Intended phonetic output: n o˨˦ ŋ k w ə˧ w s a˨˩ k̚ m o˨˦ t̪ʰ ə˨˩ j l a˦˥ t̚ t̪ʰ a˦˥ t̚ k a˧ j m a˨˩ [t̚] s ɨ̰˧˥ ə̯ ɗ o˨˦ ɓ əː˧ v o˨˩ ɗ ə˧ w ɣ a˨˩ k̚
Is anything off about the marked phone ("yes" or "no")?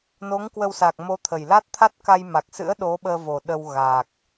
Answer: yes